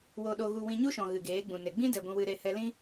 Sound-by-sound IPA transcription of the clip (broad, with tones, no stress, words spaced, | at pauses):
wo˧ɗo˧ɣu˧ wĩ˧ɲu˦ʃɔ̃˨ ɣɨ˨ɡeː˨˦ɡ͡bũ˨ne˨ ɡ͡bĩ˦dɛ˨ ɡʷũ˧wɨ˧ɾe˦˨hɛ˦ lĩ˦